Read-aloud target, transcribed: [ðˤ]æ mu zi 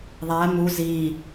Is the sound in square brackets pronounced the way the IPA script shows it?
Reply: yes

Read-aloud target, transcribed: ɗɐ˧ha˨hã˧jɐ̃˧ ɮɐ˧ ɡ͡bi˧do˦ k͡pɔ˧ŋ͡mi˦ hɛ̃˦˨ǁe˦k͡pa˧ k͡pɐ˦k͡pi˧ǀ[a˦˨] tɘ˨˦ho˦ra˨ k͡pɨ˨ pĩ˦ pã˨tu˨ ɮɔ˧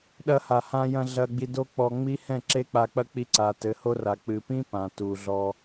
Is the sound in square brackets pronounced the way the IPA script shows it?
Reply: no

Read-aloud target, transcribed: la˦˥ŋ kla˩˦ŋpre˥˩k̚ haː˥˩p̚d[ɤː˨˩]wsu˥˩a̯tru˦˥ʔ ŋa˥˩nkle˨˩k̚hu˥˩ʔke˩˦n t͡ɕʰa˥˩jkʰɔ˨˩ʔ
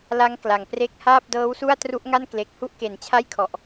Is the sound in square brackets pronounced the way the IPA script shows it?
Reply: no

